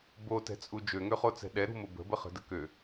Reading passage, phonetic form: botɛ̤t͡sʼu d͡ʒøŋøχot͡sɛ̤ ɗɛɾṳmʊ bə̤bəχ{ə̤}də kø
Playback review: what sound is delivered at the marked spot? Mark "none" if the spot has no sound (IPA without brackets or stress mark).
ə̤